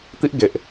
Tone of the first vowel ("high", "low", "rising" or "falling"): high